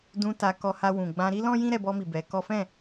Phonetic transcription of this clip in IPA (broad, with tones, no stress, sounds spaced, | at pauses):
d ũ˧ t a˧ k ɔ˧ h a˧ w ũ˨ ɡ͡b ã˧ ɾ i˦ l ɔ̃˦ j ĩ˦ ɾ ɛ˧ b ɔ˧ m i˨ b ɛ˨˦ k ɔ˦ f ɛ̃˦˨